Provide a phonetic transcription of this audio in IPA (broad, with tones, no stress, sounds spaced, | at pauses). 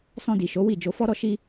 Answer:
s ɔ̃˧ d i˨ ʃ o˨˦ w i˦˨ d͡ʒ o˧ f ɔ˦ ɾ ɔ˦ ʃ i˦